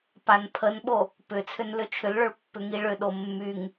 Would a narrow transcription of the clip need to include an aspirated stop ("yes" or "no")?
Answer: yes